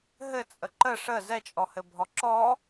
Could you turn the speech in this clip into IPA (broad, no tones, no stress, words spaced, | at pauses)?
ɦɘt͡sʼə ǃə ʂə zɛt͡ʃʼɔhɘbʱɔ ǁɔ